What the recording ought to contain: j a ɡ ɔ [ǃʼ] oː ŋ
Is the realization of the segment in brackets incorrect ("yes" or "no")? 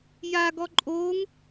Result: no